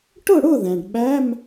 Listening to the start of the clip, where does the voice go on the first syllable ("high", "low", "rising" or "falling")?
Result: falling